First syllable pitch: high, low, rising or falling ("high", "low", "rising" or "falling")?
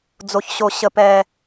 low